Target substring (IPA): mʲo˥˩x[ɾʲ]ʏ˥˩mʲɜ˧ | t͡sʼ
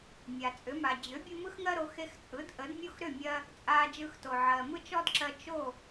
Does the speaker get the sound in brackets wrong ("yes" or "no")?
yes